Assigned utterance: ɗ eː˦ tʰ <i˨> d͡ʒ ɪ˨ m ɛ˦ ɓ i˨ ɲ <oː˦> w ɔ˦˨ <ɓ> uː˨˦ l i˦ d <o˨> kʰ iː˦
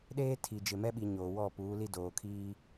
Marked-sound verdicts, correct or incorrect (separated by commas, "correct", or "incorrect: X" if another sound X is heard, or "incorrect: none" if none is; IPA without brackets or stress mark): correct, incorrect: oː˨, incorrect: p, incorrect: oː˨